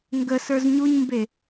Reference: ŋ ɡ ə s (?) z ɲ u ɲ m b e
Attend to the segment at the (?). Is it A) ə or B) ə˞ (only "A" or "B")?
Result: B